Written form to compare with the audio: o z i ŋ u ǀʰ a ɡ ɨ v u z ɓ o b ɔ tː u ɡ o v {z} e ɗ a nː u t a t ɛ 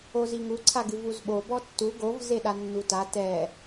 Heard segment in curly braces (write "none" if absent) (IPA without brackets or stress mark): z